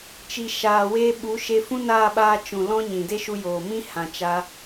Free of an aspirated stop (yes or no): yes